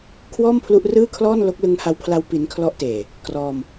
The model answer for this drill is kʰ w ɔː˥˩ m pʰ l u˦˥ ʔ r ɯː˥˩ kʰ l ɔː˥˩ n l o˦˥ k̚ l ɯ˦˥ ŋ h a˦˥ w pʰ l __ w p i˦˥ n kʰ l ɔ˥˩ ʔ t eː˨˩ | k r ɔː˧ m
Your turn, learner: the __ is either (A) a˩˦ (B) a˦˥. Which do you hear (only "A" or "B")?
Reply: B